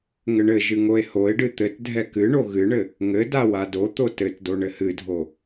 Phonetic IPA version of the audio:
ŋ ɘ ɳ ɘ ʒ ɨ ŋ o e̯ h o e̯ ɖ ɨ t̪ ɘ t dʱ ɛ k ɨ ɳ o ɣ ɨ ɳ ɘ | ŋ ɘ d a w a d o t̪ o t ɘ t d o ɳ ɘ h ɨ dʱ o

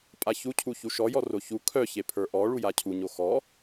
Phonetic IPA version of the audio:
pʼ a ç u cʰ u ç u ʃ ɔ j ɔ r o ç u kʰ œ ç e pʰ ə˞ ʔ ɔ ɭ u j a cʰ u ɲ o x ɔ

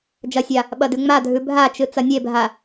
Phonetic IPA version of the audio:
d͡ʒ ɐ sʲ a | ɓ ɐ d ʉ ŋ͡m a dʱ ʉ bʱ a t͡ʃ ɨ t͡s ɐ nʲ e bʱ a

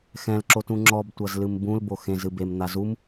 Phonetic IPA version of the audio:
x ɛ̃ l ǁ o t ũ ŋ͡ǁ ɔ b tʷ ɐ z l ɨ m b ũ l b o x ẽ z ɨ b e m n̪ a z u m

